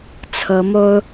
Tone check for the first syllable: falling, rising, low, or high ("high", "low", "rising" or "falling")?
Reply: rising